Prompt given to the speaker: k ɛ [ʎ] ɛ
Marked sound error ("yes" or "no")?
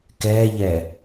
no